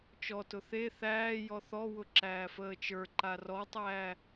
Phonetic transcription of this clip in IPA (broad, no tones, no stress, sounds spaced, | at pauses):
t͡ʃ ɔ t ʊ θ e θ æː j ɔ θ ɔ w ʊ ǁ æː f əː t͡ʃ ə˞ ǃ a r ɔ tˤ æː